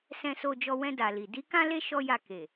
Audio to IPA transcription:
s ɛ̃˨ s o˨ d͡ʒ ɔ˨ w ɛ̃˧ d a˨ l i˨ d i˨˦ k ã˦ l e˦ ʃ ɔ˦ j a˦˨ k e˨

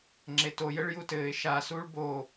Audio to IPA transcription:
ŋ͡ǁ e t o j ɘ ɭ j u t ɘː ɪ̯ ʃ a s uː ɭ b o

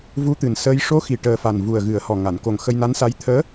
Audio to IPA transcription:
v u˧˥ t̪ ɨ˨˩ n s əː˧˥ j ʂ o˧˥ x i˨˩ ʈ əː˨˩ f a˨˩ n v u˨˩ ə̯ ɣ ɨ˨˩˦ ə̯ h ɔ˨˩ ŋ a˨˩˨ n k o˨˩ ŋ x ə˧ j n a˧˥ n s a˧˥ j t̪ʰ əː˧˥

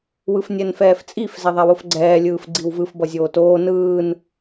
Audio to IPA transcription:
w ɯ f nʲ ɛ n f ɛː f t͡sʼ i f z ɛ ðˤ a w o f ɡ͡ǀ ɛː lʲ ɯː f ɡ͡ǀ i w v ɯ f b ʌ zʲ oː t oː n ɯː n

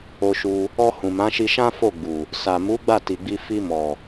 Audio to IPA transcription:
o˧ ʃ u˧ | ɔ˧ h ũ˨ m ã˨˦ ʃ i˧ ʃ ã˦ f o˦˨ ɡ͡b u˨ | s a˨ m u˨˦ ɡ͡b a˦˨ t i˨ ɡ͡b i˧ f i˧ m ɔ˨

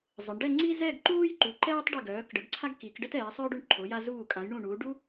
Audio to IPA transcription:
zˤ ə˩˧ ɳ ɖ ɛ˥˧ ŋ͡ǀ i˥ z ɛ˥˧ ɡ ǃ uː˥ j ǃ u˩˧ ǃ ɛː˥ tˤ ɖ i˧˩ ɡ œː˩˧ k ɖ ə˩˧ ɡ ǀʰ a˥ ɡ k i˩˧ k ɖ ə˥ t ɛː˩˧ sˤ œː˥ ɖ u˧ ɳ ǃʰ o˩˧ j a˧ z uː˧˩ kʼ ã˩˧ j ɳ ũ˧˩ ɳ uː˩˧ ɖ u˥

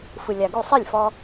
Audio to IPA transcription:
f ɯ˩ lʲ a˩ ɡ u˥˩ sˤ i˥˩ lʲ f ɔ˧

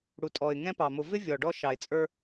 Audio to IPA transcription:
ɽ u˨ tʼ ɔ˨ ɪ̯ ŋ ɛ̃˦ p ɑ˨ m ʊ˨ v ɪ˦ vʲ ɔ˨ ɖ ɔ˦ ʃ ɑ˨ ɪ̯ t͡sʼ ə˞˦

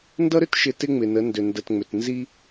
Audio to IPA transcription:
n d ʌ˦ ɾ ʏ˦ t ʃ ɪ˨ t ɪ˦ ŋ͡m ɪ˨ n ə˨˦ n d ʏ˨ n d ə˨ t ŋ͡m ʏ˨ t n z i˦

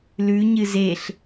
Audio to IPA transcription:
l ʉ ɲ ɨ z e ɬ

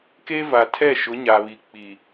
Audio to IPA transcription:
k e˦ v a˨ tʰ ɛ˦˨ ʃ ʊ˨˦ ɲ a˨ β i˨ k͡p i˨

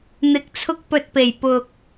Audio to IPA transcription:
n̪ ɪ˧ k̚ t͡sʰ ʊ˥ k̚ p ɵ˧ t̚ p e˨˩ j p ʊ˧ k̚

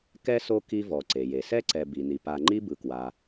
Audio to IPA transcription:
k ɛ˥ s o˦ k i˦ v ɔ˩ ǀ e˩ j e˩ s ɛ˥ ǀ ɛ˨ b i˩ n i˩ p a˨ ŋ͡ǃ i˦ b ɯ˩ k w a˩

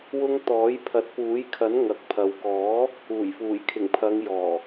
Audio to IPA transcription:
w ʊ˥ ŋ t̪ ɔː˨˥ j pʰ ɐ˨˥ t̚ p uː˨˥ j kʰ ɐ˨˥ n ŋ ɐ˨˥ k̚ pʰ ɐ˨ w k ɔː˨˥ | uː˨˩ j f uː˨˩ j kʰ ɪ˨˩ ŋ pʰ ɐ˨˧ ŋ j ɔː˨˩

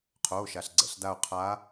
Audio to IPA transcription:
qʰ oː˩˧˩ ʃ a˩ ɬ ɡ͡ǀ ɛ̰˩ ɬ d a˧˩ o̯ qʰ a˨˦

